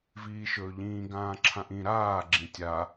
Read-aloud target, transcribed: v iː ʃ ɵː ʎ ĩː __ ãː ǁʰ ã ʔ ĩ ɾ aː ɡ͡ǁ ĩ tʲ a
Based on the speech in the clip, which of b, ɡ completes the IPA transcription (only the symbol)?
ɡ